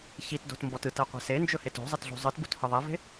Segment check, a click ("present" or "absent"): absent